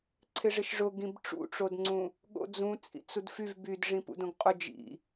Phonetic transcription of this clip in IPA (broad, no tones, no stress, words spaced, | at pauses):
ǀʰɪʐɪʃʐʊ ɡĩbʈ͡ʂṵʈ͡ʂodŋ͡ǀũ | ɠo̰d͡zũ t͡sʼḭt͡sudfyv bydʐĩ pṵdõɡqʼʊ d͡ʒḭ